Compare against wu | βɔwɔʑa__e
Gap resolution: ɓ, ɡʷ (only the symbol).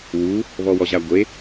ɡʷ